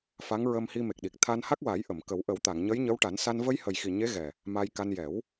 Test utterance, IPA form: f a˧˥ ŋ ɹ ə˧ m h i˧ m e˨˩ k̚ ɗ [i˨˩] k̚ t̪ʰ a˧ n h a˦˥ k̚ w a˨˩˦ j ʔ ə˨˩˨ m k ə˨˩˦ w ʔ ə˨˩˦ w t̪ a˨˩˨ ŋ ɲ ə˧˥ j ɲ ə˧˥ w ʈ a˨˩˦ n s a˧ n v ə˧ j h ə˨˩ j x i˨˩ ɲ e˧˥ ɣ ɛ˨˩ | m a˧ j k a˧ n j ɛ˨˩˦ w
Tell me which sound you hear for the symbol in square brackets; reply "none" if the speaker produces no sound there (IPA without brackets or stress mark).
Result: i˨˩